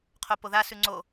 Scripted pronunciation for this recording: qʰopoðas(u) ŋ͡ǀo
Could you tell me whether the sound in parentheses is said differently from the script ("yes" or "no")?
yes